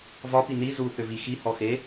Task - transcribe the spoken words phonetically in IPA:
vɒpi ni zuθʏvi xihɔxe

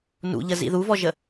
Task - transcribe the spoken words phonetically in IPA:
nṵʎəzḭ ðuvɔʒə

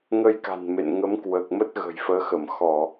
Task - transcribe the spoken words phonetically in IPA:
ŋə˧jka̤˨˩n mḛ˧˨n ŋə˨˦mkwəː˨˩k̚mə˦˥t̚ ɣə̤˨˩jfəː˨˦xə˧˩m xɔ˧˩˨

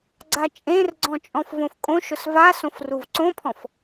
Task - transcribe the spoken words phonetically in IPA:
ɡ͡ǀat͡ʃʼẽrɡ͡ǀɔ̃ t͡ʃʼɔ̃fvõfkʼõʃʊs vasõf ruvǀõpʰɔ̃f

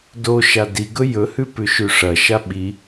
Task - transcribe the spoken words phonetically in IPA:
doʃa diɡɵ jɵhʉ pʉʃʉʂɐʃa ɓi

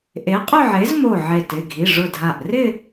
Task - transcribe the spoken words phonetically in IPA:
ʔe˨˥qʼʊ˥˧ʕe˨˥zmo˧˩ ʕe˧˩t ɪ˩˧˩ɡʱi˩˧˩ʐʊ˧˩dʱa˧˩ʔ rɪ˥˧

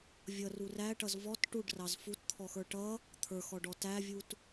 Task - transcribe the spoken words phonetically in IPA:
vʲʌru ræʈʌz vɔt ʈuɖrɑz futt̪ʰɔxə˞ ʈʌ | t̪ʰə˞xɔɖɔ tævʲut

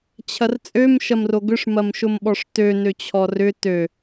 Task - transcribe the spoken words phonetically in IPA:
t͡ɕʰɐrt͡sʼøm ʃɐmroɡʏʂ mɐmʃʊmɓɔʂtø nøt͡ɕʰɔrʏ tø

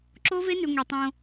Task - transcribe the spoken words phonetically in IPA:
ǁo˦ve˦nʉ˨ ŋʷi˨tˤõ˧

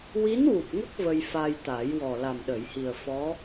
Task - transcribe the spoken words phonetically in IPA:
wi˧˥nwu˨˩p̚ŋə˦˥k̚ və˧jfa˧jt̪a˨˩˦j wɔ˨˩la˨˩mɗə˨˩˨jhi˨˩ə̯ fɔ˧˥

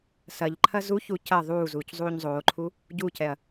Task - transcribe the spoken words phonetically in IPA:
sɐʎǃʰɐ zuçu cɐ ðˤuː zuːczˤuːɲzˤoːǃʰu | ɟucɛɐ̯

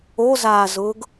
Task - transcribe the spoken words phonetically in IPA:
ozaːzʊːɡ

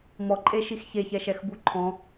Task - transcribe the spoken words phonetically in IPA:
mɔǃʼeʃix çeçɛʃɛxbu ǃʰɔ̃

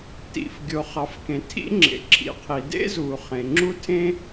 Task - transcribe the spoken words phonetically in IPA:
tḭ˩fɡʲo˩χɑ˩fkẽ˩ tʰḭ˥ŋ͡ǁḛ˩ǁʰḭ˩qʰi˩ dḛ˥zuː˩ χẽ˩ŋ͡ǁu˥tʰẽ˥

